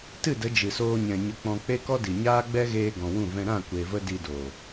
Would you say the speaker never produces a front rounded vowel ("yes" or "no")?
yes